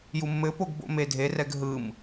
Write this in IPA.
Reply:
j u mː ɘ p o ɡ b o̰ m e dʱ e r ɛ ɡ ɦ ɯ m

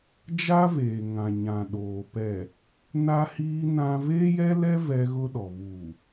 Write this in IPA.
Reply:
d͡ʒ a˦ v eː˨ ŋ ã˨ ɲ ã˨ ɗ oː˨ p ɛ˨ | n a˦ h iː˦ n ã˦ v eː˦ j ɛ˦ l ɛ˦ v ɛ˦ ɣ ʊ˦ ɗ ɔ˨ β uː˨

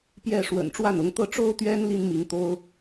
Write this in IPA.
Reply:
p j ɛ˥˩ ʂ w ə̰˨˩ n ʈ͡ʂ w a˥˩ n ʊ˧˥ ŋ t̪ ɤ˥˩ ʈ͡ʂ o˥ ʊ̯ t̪ ɥ ɛ˥ n l i˥ n m i˧˥ ŋ t̪ o˥ ʊ̯

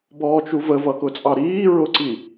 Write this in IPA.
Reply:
b ɔː t͡ʃ u v ə v ʌ k ʊ t͡sʼ ɑ ɾ iː ɹ ʊ ǀ i

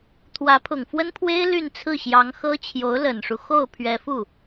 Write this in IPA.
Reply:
t̪ʰ w ä˧˥ pʰ ʊ˨˩ ŋ f w ə˥ n pʰ w e˥ ɪ̯ l y˥˧ n t͡sʰ ɹ̩˥˩ ɕ j ɑ˧˥ ŋ x ɤ˥ t͡ɕʰ j o˧˥ ʊ̯ l ə˨˩ n ʂ u˦ x o˥˩ ʊ̯ pʰ ɥ ɛ˧˥ f u˥˩

